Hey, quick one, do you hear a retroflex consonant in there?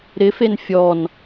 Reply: no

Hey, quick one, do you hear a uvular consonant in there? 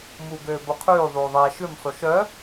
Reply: yes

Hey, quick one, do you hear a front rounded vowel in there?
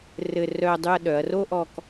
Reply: yes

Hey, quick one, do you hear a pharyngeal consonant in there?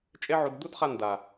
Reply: yes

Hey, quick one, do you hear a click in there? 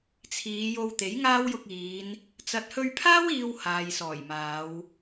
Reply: no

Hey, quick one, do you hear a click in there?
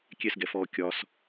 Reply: no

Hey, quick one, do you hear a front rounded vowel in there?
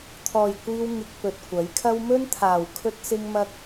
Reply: no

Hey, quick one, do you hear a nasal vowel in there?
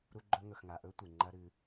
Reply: no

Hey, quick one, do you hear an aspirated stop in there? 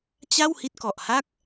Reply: no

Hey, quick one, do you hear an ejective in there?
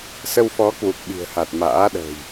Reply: no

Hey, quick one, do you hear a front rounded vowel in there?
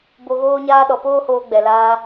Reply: no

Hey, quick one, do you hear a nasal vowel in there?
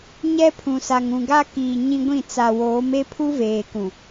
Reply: yes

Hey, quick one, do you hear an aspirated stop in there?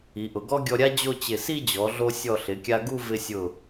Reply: no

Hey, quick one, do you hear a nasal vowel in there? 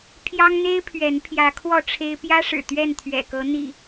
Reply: no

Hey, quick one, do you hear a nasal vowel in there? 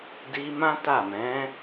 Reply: yes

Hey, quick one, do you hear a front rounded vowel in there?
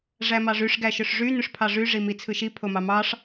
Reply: yes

